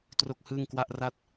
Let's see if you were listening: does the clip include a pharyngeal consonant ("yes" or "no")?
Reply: no